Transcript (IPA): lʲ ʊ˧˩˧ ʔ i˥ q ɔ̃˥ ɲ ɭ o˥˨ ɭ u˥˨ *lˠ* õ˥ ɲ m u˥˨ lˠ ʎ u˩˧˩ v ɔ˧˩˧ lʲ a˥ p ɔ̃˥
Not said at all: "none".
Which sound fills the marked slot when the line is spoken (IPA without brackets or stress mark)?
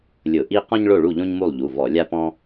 ʎ